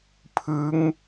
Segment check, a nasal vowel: absent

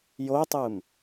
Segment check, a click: absent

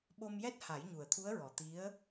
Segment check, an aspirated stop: present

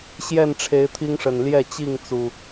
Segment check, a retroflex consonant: present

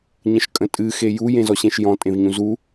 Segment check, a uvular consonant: absent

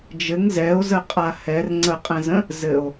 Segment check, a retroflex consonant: absent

